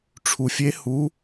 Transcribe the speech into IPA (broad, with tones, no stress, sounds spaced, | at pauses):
ʈ͡ʂʰ u˧ fʲ e˦˥ h u˦˥